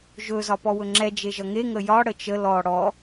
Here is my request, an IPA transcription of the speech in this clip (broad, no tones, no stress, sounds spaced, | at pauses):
ʒ ɵ z ɒ p ɔ w ɵ ŋ͡ǁ ɛ d͡ʒ e ʒ ʌ ŋ e ŋ ə j ɒ ɽ ə t͡ʃ ə l ɔ ɽ ɔ